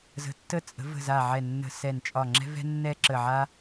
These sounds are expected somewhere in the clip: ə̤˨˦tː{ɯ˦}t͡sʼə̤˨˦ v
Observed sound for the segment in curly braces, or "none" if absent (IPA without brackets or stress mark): ə˦